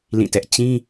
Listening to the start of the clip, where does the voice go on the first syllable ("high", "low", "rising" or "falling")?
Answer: falling